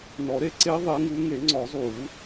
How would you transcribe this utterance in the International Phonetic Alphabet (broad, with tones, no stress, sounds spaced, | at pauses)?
n ɔ˨˩˦ ɾ e˥˨ ǀ e˦˥ ðˤ e˨˦ ŋ u˨˦ ŋ e˨˩˦ ŋ͡ǀ ɔ˨˩˦ zˤ u˨˩˦